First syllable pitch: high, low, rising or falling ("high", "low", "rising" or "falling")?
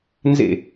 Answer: falling